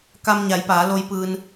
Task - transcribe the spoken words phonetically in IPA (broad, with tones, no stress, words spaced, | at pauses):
ka˧mɲa˩˧jpaː˩˧ lo˩˧jpɯː˩n